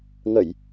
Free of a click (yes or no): yes